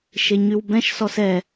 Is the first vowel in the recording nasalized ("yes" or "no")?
no